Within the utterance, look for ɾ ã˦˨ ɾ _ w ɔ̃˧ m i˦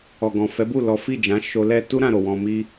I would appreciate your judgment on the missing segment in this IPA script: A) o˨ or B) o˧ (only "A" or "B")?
A